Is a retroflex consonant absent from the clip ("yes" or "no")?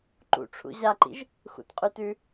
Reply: no